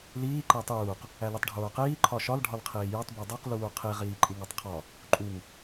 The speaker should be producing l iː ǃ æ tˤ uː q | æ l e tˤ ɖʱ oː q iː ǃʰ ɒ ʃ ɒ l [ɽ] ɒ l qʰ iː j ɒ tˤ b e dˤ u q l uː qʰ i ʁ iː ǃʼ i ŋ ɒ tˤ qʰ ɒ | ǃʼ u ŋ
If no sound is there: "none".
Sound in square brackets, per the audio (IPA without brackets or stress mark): ɖʱ